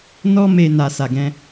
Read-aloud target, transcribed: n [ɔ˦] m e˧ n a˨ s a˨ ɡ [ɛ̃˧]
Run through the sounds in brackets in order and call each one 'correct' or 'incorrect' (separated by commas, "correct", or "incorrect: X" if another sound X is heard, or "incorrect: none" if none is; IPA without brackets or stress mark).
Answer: correct, correct